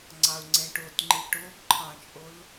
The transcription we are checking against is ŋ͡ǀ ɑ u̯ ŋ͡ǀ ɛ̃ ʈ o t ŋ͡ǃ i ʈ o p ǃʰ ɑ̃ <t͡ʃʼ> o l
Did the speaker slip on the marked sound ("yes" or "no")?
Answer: no